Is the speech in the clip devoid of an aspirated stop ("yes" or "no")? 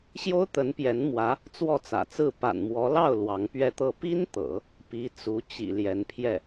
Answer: no